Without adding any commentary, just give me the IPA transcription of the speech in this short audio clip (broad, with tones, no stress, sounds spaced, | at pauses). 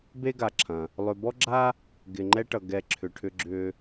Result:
b e˥ ɡ a˨ ǁʰ ɐ̃˩ | lˠ ʏ˨ b ɔ˥ ɡ͡ǁ a˥ | ɡ ɪ˨ ŋ͡ǃ ɛ˦ ʈ ʌ˨ ɡ ɛ˨ ǁʰ ʏ˨ ʈʰ ʏ˦ ɡ͡ǁ ʏ˦